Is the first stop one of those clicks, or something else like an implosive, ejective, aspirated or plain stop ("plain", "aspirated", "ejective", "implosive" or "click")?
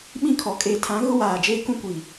implosive